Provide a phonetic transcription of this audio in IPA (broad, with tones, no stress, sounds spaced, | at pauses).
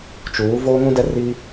t͡ʃ uː˨˦ v oː˦ ŋ ũ˦ d ɛ˦ r i˦